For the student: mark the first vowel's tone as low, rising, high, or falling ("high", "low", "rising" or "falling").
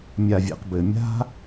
low